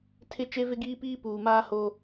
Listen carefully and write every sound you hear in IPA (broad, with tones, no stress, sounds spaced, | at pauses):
tʰ ɪ˦ t͡ʃ e˦ v ɪ˦ ɡ iː˦ p iː˦ p uː˨ m aː˦ h o˦